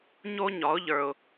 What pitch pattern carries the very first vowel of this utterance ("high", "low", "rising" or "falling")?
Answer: high